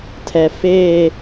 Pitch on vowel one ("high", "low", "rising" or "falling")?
low